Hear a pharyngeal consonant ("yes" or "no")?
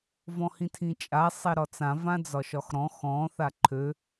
no